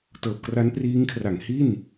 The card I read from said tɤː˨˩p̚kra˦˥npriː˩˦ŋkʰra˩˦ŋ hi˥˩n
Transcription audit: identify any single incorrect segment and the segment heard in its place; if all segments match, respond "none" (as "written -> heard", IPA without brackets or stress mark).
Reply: iː˩˦ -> iː˦˥